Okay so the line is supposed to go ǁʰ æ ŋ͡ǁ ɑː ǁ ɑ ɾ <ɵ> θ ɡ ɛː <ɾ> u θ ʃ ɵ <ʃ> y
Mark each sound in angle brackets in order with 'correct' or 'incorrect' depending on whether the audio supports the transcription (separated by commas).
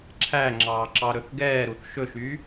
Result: correct, correct, correct